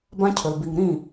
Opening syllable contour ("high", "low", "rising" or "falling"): high